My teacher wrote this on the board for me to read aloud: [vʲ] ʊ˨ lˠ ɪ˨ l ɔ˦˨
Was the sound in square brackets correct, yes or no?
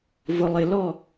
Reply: no